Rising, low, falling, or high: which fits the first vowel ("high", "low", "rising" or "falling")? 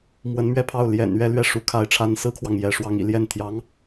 rising